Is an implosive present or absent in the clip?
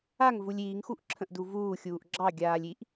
absent